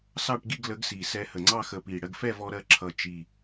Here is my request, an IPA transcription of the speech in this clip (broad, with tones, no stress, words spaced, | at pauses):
sɑ˥˧ʈɡi˥˧ɡ lə˨˥ɡsi˨˩ sɛ˧hə˨˩ŋ͡ǀɑ˥˧ xə˧pi˨˩ ɽɜ˧ɡfɛ˥˧vɔ˧ɾɜ˧ ǁʰʌ˨˩ t͡ʃi˨˩